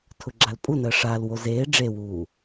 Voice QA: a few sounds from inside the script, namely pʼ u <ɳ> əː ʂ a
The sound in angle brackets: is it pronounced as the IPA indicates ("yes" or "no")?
no